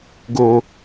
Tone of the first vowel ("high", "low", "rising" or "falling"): low